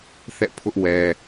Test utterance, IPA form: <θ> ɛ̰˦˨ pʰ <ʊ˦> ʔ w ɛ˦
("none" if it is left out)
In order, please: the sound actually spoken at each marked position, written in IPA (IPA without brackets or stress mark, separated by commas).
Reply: θ, ʊ˦